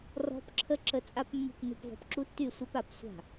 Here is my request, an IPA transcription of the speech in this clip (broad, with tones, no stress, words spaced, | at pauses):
rɔ̤˦˥p ǁʰə˦˥ǁə˧ t͡sʼa˦˥pmːṳ˥˩pnṳ˥˩p vɔ̤˧pǁu˦˥tːy˥˩sʷa˦˥p a˧psʷa̤˥˩